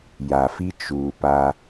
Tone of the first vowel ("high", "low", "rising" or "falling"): low